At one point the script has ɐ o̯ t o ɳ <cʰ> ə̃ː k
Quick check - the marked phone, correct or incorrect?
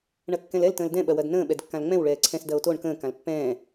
incorrect